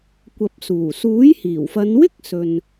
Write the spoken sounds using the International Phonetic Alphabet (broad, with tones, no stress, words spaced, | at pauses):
kʷɐ˨p̚suː˨˩ suː˨˥jhiː˨˩wfɐ˨˧n wɪ˥k̚sɵ˨n